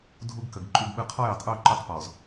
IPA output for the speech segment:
dʱu˦ɡkə˨ɡǃʼu˦ɡɓɯ˦ qʰɔ˦jə˨tˤʔu˦˨ ǃu˦tˤpɔ˨z

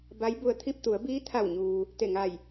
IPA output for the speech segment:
ba˧˥jbu˧ə̯t̪ʰi˥˨p̚ t̪u˩˧ə̯biː˧˥t̪ʰa˧˩wɲuː˩ | t̪e˧˩ŋa˧˩j

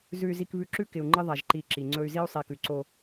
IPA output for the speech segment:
zʉ˨y̯zi˨kβʉ˨ ǁʉ˦kɪ˨u̯ŋ͡ǃɪ˦ ðˤa˨ʒǃi˨ ǁi˨ŋ͡ǀɵ˦y̯ zi˦u̯sˤi˨kʉ˨ǀo˦

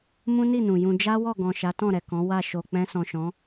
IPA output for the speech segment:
mũ˦ni˦˨ nũ˨jũ˧ d͡ʒa˦wɔ˦˨ɡɔ̃˨ ʃa˨˦tɔ̃˦˨ɾɛ˨ kɔ̃˨˦wa˦˨ ʃo˨ k͡pɛ̃˧sɔ̃˨ʃɔ̃˨˦

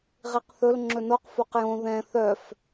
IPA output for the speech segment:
ʁiqθɵl ŋ͡ǁɵnoq foqjõ ðɛ̃ θœf

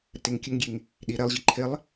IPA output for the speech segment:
ɾəteŋkʲəŋɡʲeŋ | ɗi ɾɛlˠʑi ǃʰɪlˠ

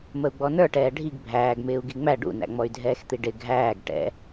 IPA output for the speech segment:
məu̯ɡ͡bɔnə˞ʈɛː ɖʱiɡ bʱæːɡ mɪːu̯ɡiŋ͡mæ ɖṵnæ̰ŋ͡mɔy̯dʱɛːx t̪iɖɪ ɡʱæːɡ ʈɛ̰

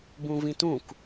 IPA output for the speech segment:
bũvĩtũk

